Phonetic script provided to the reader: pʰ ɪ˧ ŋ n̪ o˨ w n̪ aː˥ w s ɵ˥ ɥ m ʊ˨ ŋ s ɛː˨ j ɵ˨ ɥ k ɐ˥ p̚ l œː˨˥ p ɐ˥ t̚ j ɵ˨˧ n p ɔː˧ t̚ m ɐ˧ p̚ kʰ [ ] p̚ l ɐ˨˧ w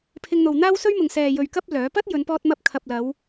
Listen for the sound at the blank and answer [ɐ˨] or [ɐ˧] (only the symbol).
ɐ˨